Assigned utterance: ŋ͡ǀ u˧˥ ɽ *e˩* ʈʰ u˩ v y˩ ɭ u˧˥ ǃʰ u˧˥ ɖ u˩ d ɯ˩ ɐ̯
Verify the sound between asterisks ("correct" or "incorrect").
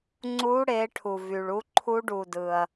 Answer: incorrect